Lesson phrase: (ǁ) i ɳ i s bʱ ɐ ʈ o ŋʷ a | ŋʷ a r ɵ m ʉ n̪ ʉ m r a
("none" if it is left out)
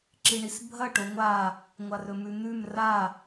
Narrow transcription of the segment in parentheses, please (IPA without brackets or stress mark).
ǁ